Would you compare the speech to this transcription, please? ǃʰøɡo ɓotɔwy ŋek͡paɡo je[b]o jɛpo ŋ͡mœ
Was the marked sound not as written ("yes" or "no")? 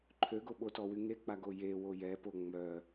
yes